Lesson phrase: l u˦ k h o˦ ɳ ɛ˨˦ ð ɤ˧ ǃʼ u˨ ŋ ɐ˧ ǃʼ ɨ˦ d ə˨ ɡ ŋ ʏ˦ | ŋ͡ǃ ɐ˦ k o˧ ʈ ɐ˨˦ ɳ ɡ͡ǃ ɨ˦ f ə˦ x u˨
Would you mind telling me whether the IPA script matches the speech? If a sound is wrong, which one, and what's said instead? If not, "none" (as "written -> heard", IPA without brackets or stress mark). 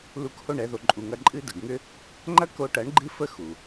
ɤ˧ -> o˧